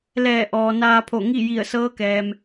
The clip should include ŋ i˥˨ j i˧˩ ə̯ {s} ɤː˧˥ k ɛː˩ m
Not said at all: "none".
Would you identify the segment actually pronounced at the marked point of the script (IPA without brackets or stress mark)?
s